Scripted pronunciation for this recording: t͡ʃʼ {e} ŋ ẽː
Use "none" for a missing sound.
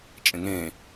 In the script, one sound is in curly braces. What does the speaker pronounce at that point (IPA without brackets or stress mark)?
ẽ